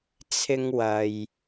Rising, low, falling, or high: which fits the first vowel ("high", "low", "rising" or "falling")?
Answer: high